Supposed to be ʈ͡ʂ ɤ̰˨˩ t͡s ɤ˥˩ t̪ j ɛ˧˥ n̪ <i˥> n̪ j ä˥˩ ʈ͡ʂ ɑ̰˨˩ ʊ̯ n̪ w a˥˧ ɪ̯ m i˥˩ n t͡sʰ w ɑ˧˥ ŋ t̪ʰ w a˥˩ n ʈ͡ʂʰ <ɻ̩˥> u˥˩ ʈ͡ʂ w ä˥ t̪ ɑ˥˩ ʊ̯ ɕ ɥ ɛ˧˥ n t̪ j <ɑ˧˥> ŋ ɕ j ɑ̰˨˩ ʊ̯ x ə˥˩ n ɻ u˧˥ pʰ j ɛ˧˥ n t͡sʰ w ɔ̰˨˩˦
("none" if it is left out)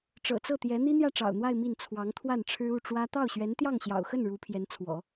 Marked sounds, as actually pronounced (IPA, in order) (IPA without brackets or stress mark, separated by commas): i˥, ɻ̩˥, ɑ˥˩